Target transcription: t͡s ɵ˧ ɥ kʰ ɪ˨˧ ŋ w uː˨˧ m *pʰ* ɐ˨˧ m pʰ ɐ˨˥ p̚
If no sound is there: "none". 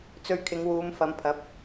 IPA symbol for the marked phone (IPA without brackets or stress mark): f